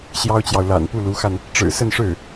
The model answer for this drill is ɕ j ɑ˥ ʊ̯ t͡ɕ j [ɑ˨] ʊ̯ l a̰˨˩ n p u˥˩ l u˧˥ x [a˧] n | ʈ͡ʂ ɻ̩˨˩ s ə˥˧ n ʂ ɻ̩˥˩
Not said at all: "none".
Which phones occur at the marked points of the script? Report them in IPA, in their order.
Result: ɑ˨, a˧

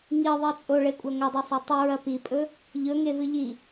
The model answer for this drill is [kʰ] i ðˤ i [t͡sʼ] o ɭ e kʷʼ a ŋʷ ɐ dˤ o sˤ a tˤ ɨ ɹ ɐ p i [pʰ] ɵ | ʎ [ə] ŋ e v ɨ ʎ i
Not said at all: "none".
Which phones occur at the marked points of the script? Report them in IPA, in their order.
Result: ŋ, t͡sʼ, pʼ, ɵ

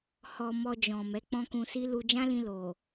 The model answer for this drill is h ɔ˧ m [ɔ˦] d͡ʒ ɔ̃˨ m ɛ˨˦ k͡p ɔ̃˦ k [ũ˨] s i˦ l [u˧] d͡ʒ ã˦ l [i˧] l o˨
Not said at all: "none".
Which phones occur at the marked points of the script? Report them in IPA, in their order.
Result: ɔ˧, ũ˧, u˧, ĩ˧

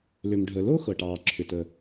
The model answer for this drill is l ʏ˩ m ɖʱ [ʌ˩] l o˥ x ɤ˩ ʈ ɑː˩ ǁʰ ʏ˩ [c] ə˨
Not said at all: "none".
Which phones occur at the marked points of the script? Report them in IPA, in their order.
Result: ə˩, t

